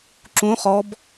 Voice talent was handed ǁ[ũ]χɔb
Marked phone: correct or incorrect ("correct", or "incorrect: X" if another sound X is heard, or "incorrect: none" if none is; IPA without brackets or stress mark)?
correct